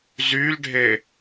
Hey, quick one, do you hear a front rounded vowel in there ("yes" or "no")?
yes